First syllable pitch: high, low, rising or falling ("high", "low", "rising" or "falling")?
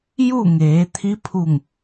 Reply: falling